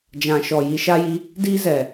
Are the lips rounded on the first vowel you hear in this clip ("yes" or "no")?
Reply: no